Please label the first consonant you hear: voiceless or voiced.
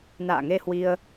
voiced